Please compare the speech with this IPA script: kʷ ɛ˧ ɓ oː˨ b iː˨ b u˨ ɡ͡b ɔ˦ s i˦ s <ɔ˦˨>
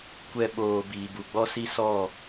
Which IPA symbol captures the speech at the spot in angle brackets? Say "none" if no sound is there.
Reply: ɔ˦˨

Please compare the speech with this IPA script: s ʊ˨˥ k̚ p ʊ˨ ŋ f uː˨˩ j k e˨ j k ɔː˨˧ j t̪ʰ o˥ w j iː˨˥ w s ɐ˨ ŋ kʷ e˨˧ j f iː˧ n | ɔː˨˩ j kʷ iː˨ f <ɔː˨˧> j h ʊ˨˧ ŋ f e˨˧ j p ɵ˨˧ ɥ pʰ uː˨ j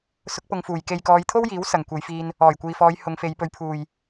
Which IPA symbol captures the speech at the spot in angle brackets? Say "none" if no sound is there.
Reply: ɔː˨˧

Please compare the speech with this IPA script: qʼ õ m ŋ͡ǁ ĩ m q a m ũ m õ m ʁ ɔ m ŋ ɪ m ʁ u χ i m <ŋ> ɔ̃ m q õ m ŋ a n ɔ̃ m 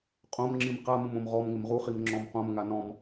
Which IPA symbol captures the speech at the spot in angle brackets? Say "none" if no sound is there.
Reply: ŋ͡ǁ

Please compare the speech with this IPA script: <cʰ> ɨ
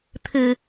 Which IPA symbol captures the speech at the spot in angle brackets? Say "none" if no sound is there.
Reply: t̪ʰ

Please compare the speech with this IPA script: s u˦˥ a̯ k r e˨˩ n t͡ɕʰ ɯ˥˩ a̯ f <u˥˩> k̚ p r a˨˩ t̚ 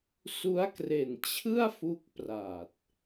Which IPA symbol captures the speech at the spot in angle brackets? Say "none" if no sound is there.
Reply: u˦˥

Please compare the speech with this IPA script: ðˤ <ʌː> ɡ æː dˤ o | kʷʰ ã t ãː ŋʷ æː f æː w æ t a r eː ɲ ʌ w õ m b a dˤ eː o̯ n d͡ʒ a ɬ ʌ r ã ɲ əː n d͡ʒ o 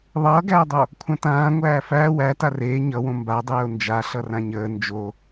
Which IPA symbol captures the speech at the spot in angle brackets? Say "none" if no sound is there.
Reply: ʌː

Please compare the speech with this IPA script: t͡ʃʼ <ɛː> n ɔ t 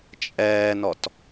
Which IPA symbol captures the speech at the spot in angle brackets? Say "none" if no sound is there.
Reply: ɛː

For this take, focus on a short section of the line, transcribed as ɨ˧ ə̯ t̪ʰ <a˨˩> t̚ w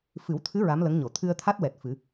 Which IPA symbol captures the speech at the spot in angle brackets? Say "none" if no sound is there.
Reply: a˦˥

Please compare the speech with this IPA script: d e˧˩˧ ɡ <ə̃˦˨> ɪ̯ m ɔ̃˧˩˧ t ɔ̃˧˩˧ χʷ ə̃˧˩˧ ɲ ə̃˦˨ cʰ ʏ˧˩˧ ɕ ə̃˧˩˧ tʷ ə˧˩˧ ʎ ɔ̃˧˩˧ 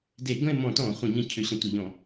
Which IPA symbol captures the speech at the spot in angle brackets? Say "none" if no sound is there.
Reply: ə̃˦˨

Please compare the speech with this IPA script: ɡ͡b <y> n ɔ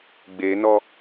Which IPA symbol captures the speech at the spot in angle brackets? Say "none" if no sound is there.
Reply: e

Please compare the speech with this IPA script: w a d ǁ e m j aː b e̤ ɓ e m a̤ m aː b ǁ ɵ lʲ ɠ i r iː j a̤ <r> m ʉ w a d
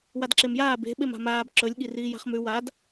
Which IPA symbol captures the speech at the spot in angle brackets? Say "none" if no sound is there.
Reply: χ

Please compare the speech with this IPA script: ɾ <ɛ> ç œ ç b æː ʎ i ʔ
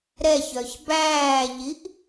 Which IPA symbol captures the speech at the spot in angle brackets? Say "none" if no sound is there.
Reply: ɛ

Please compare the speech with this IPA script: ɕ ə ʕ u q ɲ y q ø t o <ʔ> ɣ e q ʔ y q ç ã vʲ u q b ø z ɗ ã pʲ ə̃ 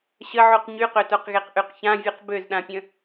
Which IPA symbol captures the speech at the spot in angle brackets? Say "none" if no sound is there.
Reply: q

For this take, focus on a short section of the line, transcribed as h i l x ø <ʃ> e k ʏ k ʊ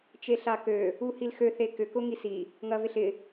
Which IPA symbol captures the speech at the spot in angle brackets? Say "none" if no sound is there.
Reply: θ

